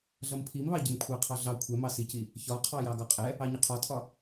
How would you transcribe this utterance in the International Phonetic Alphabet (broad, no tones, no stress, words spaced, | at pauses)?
ɮʌmpʰimβɑ ɟɪmkʷʰɑqʰɑ ɮɑ kʷʰɛmɑ sici | çɒ qʰɑjɑɡɒqʼɛ | ɑɲɪqʰɒtʰɒ